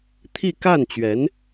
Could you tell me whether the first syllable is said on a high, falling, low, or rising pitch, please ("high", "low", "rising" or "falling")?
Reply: falling